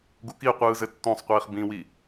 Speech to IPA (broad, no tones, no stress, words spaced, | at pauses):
ɡukiqʷɯː zɘtːõsˤqʷiːχ bĩwi